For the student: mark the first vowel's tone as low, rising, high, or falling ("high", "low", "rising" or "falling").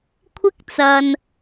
high